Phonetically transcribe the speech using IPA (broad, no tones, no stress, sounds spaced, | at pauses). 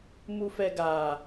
m u f ɛ ɡ a